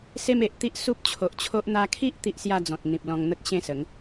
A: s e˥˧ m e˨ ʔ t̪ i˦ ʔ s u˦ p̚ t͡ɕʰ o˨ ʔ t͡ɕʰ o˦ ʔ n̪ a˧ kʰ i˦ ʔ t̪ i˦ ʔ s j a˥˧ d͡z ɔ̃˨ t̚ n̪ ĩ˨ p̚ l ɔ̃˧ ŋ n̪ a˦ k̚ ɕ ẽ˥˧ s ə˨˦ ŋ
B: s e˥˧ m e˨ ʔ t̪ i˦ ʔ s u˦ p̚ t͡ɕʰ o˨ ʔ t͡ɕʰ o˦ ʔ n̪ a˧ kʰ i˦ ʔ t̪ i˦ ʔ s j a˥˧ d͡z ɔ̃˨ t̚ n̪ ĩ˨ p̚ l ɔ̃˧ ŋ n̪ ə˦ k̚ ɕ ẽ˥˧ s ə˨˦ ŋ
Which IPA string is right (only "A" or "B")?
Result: B